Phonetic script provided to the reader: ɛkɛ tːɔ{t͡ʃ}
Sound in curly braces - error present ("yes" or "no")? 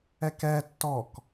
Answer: yes